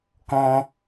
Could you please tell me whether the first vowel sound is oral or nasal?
nasal